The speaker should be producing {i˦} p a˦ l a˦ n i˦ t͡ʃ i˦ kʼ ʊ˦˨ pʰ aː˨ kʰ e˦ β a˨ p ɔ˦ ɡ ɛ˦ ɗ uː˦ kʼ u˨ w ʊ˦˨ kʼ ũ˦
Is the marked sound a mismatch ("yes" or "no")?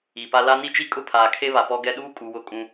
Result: yes